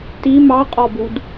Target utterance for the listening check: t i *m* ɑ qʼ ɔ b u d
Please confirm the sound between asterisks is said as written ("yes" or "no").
yes